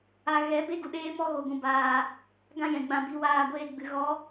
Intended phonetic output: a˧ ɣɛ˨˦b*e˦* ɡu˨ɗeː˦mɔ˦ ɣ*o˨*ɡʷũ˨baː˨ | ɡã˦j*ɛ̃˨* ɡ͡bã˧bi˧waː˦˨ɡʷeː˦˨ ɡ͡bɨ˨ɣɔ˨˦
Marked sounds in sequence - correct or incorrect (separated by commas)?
correct, correct, correct